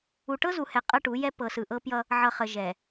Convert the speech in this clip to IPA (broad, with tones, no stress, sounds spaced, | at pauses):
u˨ ʈ ɤ˦ z u˨ h ɛ˨ qʼ ɤ˦ ʈ u˨˦ j ɛ˦ p ɤ˨ s ɯ˨ ʔ ɤ˦ p j ʌ˦ | ʕ ʌ˨ χ ə˨ ʒ ɛ˨